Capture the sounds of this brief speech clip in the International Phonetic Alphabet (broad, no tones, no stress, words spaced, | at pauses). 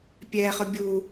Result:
pʲɛχʊ bʲu